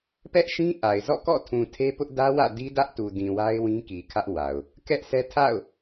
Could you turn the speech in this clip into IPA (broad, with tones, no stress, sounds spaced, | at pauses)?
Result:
p ɛ˦ ʔ ʃ ĩ˦ ʔ a˨ ɪ̯ z ɔ̰˦˨ k ɔ̰˦˨ tʰ ũ˨ tʰ e˦ p ʊ˦ ʔ d ä˦ w ä̰˦˨ d i˦ d ä˦ ʔ t u˨ d ĩ˨ w a˦ ɪ̯ w ĩ˦ k i˨ kʰ ä˦ ʔ w a˨ ʊ̯ | k ɛ˦ ʔ sʰ ɛ˦ tʰ a̰˦˨ ʊ̯